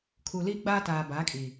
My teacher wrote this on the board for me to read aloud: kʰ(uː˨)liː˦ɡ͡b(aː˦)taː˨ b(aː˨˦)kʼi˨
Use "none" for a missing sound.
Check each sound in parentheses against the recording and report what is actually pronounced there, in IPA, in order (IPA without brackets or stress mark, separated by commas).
u˨, aː˦, aː˨˦